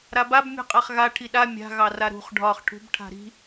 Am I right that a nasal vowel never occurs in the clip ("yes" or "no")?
yes